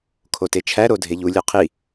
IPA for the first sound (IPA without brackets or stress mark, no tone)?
kʰ